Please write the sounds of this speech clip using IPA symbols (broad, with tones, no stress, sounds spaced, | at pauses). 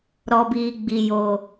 ɾ ɔ˨ b iː˨ ɡ͡b i˨ j oː˨